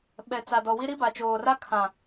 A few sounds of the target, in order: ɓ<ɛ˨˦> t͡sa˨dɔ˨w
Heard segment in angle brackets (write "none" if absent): ɛ˨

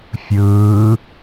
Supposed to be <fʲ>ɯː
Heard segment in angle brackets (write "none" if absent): fʲ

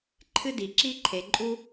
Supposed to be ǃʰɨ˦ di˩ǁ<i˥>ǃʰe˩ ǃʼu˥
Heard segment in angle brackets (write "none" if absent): i˥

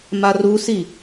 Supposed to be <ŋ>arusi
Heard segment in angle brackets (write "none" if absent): m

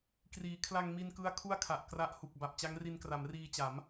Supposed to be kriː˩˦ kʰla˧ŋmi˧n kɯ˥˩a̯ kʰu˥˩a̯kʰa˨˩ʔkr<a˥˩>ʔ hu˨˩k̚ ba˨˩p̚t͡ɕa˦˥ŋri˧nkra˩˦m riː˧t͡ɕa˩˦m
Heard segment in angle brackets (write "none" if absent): a˦˥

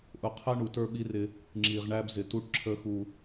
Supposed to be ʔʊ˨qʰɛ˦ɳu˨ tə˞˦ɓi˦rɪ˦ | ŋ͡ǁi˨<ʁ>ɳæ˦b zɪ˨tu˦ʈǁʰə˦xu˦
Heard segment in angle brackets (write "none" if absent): ʁ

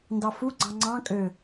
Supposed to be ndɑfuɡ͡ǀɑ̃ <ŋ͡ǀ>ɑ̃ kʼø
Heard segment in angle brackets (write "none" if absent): ŋ͡ǀ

